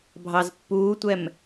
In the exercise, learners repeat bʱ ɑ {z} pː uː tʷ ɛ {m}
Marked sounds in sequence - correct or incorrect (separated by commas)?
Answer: correct, correct